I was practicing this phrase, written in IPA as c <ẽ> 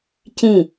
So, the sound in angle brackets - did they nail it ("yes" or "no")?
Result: no